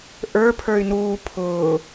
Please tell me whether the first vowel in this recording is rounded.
no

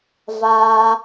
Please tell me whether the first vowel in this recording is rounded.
no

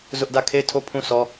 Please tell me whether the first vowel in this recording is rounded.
yes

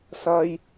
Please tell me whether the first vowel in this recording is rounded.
no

